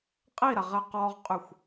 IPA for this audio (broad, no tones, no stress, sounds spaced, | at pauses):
qʼ i ɾ a ʁ ɛ q ɔ ʁ qʼ y xʷ